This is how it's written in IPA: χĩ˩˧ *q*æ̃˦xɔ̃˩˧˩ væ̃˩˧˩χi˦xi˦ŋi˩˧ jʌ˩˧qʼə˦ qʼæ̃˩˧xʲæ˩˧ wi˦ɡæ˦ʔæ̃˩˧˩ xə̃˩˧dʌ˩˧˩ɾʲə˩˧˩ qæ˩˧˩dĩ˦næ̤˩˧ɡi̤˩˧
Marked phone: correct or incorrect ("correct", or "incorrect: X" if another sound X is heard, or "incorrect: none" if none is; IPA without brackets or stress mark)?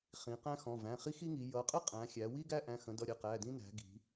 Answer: correct